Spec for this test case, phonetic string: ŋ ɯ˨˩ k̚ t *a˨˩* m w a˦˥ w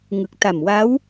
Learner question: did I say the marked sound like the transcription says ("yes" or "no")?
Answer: yes